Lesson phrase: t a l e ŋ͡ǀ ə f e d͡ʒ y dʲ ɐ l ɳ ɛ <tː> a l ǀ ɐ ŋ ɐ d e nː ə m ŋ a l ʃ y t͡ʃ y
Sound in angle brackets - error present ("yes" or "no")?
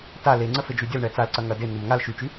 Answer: yes